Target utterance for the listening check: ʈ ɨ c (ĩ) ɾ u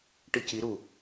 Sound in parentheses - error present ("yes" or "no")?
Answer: yes